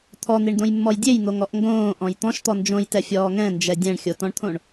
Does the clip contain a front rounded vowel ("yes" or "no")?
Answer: no